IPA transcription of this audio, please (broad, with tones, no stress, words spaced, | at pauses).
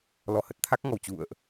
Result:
lɔ˧hə˦˥t̚t̪ʰa˦˥k̚ ŋɔ˧˩wt͡ɕṵ˧˨ə̯ʔ